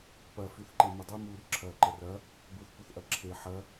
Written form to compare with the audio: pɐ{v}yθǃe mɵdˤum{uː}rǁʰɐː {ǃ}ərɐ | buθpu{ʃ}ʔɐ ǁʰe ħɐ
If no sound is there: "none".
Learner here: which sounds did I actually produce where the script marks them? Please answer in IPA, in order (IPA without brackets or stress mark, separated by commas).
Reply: f, uː, ǃ, θ